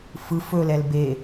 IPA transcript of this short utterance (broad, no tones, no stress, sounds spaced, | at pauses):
f ɯ f ɵ l ɛ l b e